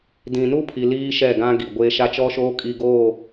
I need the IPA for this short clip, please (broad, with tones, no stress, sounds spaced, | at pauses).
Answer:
d ĩ˨ n u˦ pʰ i˨ l iː˦ ʃ ɛ˦˨ ɡ ã˦ ɡ i˨ ɡʷ eː˦ ʃ a˦ t͡ʃ ɔ˦ ʃ oː˦ kʼ i˦ ɡ oː˦˨